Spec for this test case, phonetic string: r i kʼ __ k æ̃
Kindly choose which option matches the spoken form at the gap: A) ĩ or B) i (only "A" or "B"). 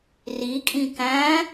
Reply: A